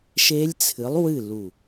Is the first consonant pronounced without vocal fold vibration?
yes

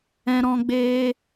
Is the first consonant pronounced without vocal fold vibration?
no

